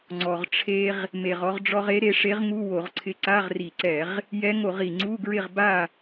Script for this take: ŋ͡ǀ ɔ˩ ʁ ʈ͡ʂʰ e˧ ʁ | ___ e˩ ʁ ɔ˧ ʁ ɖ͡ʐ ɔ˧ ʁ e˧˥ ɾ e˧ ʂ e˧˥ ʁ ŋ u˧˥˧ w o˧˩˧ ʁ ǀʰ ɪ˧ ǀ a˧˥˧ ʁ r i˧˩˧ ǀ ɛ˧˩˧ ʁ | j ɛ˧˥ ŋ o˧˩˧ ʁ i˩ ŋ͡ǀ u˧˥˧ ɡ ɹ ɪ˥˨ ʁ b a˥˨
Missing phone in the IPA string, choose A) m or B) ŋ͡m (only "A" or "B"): A